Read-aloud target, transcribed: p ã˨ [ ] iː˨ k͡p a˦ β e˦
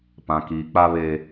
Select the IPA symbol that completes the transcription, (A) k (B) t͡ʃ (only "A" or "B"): A